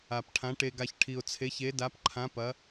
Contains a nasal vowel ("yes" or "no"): yes